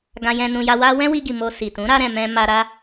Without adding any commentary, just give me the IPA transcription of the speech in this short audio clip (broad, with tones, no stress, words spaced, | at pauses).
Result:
ɡã˧jɛ̃˧nũ˧ja˧ wa˦ wɛ̃˦wi˧ɡi˨ mo˧si˨ tũ˨˦ɾa˧ɾɛ̃˨ mɛ̃˧ ma˧ ɾa˧